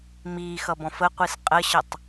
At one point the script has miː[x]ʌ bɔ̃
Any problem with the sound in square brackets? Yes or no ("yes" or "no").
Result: no